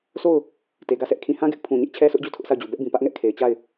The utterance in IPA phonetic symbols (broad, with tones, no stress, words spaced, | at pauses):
sʰo˦˨ʊ̯ | te˨ɡä˦˨sɛ˦ʔ kʰĩ˨hã˦ɡɪ˦ʔ pʰũ˨ɲɪ˦ʔ t͡ɕʰɛ˦sʊ˦ʔd͡ʑu˦˨ tʰʊ˦ʔsʰa˦˨ʊ̯d͡ʑu˨ bɛ˦ʔbĩ˨pä˦ʔ ŋɛ˦ʔkʰe˨ɪ̯t͡ɕa˦˨ɪ̯